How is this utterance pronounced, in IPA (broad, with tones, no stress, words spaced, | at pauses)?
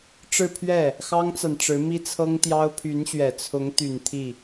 ʈ͡ʂɻ̩˥˧pʰɥɛ˥˩ | xɑ˥ŋt͡sa˨nʈ͡ʂɻ̩˧˥ mi˥t͡sʰɤ˥ŋt̪jɑ˥ʊ̯ pʰy˧˥nɕɥɛ˨˩ t͡sʰʊ˧˥ŋ t̪y˨˩n t̪ʰi˥˩